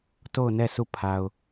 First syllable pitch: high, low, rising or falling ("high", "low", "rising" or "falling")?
falling